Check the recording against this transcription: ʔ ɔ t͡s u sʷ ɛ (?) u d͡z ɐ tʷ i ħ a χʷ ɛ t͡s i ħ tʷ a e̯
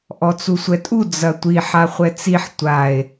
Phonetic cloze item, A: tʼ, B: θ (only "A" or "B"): A